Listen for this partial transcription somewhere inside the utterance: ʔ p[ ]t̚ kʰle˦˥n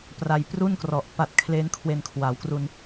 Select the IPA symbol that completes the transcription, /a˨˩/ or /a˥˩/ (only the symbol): a˨˩